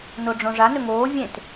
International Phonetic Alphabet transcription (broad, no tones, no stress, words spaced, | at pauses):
noɖ͡ʐõʐa nɵŋoː vʲẽt